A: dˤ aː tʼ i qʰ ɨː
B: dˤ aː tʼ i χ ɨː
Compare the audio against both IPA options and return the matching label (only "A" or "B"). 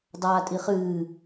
B